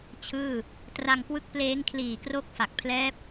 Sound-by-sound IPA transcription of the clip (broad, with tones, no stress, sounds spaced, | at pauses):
t͡ɕʰ ɯː˥˩ | t r a˧ ŋ k w ɯ˥˩ k̚ p l eː˦˥ ŋ kʰ l iː˨˩ k r o˥˩ k̚ f a˨˩ k̚ pʰ l ɛː˦˥ p̚